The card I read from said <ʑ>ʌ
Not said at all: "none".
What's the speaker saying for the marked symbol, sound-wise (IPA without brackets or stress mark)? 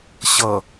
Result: ɕ